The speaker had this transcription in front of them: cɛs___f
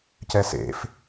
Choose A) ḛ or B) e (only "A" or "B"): A